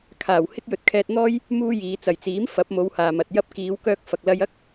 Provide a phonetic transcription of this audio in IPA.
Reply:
kʰ aː˨˩ w h ɪ˥ k̚ j ɵ˨˥ t̚ kʰ ɛː˧ t̚ n̪ ɔː˥ j | m uː˥ j iː˨˧ t͡s ɐ˨˩ j t͡s iː˨˥ m f ɐ˨˥ p̚ m o˨˧ w h aː˨ m ɐ˨ t̚ j ɐ˥ p̚ k iː˨˧ w k œː˧ k̚ f ɐ˨ k̚ l ɐ˧ j ɐ˥ k̚

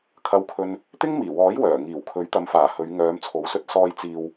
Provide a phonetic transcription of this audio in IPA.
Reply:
kʰ ɐ˧ w kʰ ɵ˧ n | t̪ ɪ˥ ŋ m iː˨˩ w ɔː˨˥ j w œː˨˩ ŋ iː˨˩ w kʰ ɵ˨˥ ɥ t̪ ɐ˨˧ m f aː˨˩ h ɵ˨˧ ɥ ŋ œː˨˧ m t͡sʰ o˨˥ w s ɵ˧ t̚ s ɔː˨ j t͡s iː˨ w

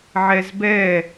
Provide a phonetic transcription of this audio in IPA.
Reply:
ʕ ɛ z b ɛ

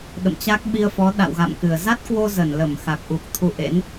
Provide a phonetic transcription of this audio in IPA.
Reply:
ɗ ə̰˧˨ m t͡ɕ a˦˥ k̚ ɓ i˧ ə̯ f ɔ˨˦ ɗ a̰˧˨ w ɣ a̰˧˨ m k ɨ˧˩ ə̯ z a˦˥ t̚ k w o˧ z ə˧˩ n l ə˧˩ m x a˨˩ k̚ ʔ u˨˩ k̚ t̪ʰ u˧ ʔ ḛ˧˥ n

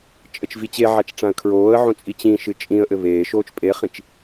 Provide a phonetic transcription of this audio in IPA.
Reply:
t͡ʃʼ ɘ t͡ʃ v i t͡ɕ e ʕ a t͡ʃ ʈ͡ʂ ã ə̯ kʰ ɹ oː ə̯ ʕ õ t͡sʼ i t͡ɕ ĩ ʃ ɨ t͡ʃʼ ĩ ə̯ ʔ ɘ β eː ʃ oː t͡ʃ pʼ e χ ĩ t͡ʃ

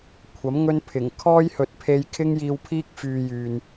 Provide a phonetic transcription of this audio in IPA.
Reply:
kʷʰ ɐ˨˥ m ŋ ɵ˥ n pʰ ɪ˨˩ ŋ kʰ ɔː˥ j h ɵ˨ t̚ pʰ e˧ j kʰ ɪ˥ ŋ j iː˧ w pʰ iː˥ k̚ f yː˧ j yː˨ n

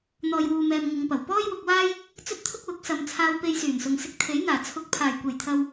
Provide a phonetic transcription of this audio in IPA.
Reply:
n̪ ɔː˨ j w uː˨ m ɛː˨ m ŋ ɪ˨˧ ŋ p ɐ˨˩ w p ɔː˥ j w ʊ˧ k̚ w aː˥ j | t͡s ɵ˥ t̚ t̪ʰ ʊ˥ k̚ w ʊ˨˥ k̚ s ɐ˨ m t͡sʰ aː˧ w p e˧ j s yː˨˩ n s ʊ˨ ŋ s ɪ˧ k̚ t̪ʰ e˨˥ j n̪ aː˨˩ t͡sʰ ʊ˨ k̚ pʰ aː˨˩ j kʷ e˨˩ j t̪ʰ ɐ˨ w

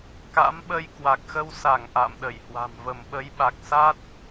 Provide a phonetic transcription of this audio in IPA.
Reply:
k a̰˧˥ m ɓ ə˧ j k w a˨˩ k̚ x ə˧ w s a˧˩ ŋ ʔ a̰ː˧˨ m ɗ ə˧˩ j h w a̤˨˩ m v ə˧˩ m ɓ ə˨˦ j ɓ a˨˩ k̚ s a˦˥ t̚

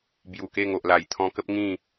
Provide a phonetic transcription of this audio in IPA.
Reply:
b j u˨˩ k e˥˧ ŋ o˨ ʔ l a˨˩ j t̪ʰ ɔ̃˧ k ə˦ p̚ ŋ ĩ˥˧

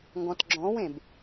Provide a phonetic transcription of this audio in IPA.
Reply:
ŋ ɡ ɔ̃ t ɡ͡ǁ ɔ̃ w ẽ b

